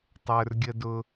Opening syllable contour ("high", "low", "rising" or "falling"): low